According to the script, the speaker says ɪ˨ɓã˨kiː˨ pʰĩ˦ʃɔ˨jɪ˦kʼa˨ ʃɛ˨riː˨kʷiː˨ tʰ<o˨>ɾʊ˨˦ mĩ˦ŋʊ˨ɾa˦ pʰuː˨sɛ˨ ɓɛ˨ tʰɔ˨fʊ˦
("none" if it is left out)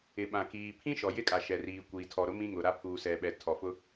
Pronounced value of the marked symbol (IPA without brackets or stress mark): ɔ˨